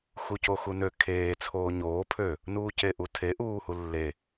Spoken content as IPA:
x u c o x u n ø kʰ eː t͡sʰ oː ɲ oː pʰ ø | n uː c e ʔ u tʰ e ʔ uː h u lː e

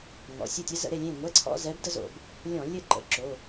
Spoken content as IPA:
ŋ ɔ̰˩˧˩ sʲ ə˥˨ tʲ ɘ˧˥ z ə̰˧˩˧ ɾ e˥˨ lʲ ẽ˥˨ ŋʷ ɛ˧˥˧ ǀʰ ɔ̰˧˥˧ z ɛ˧˥ b d ə˥ z o̰˧˩˧ b | lʲ ɔ̃˧˩˧ lʲ ɘ˥˨ ǃ ə̰˩˧˩ ǁ o˩˧˩

